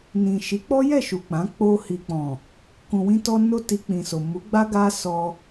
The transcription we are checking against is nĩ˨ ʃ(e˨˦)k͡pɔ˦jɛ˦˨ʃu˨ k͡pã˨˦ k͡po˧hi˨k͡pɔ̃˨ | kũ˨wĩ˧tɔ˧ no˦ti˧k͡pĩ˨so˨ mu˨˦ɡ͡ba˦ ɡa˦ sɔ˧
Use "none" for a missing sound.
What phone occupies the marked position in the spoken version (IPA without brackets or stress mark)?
i˨˦